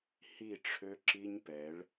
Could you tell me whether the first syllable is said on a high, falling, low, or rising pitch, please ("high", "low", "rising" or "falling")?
falling